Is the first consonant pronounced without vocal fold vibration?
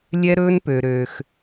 no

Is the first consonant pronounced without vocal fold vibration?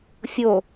yes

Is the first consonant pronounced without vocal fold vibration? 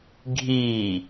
no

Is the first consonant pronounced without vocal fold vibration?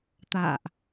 yes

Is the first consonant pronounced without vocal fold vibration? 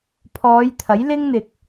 yes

